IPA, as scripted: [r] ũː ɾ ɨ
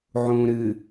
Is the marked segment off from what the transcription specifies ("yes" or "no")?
yes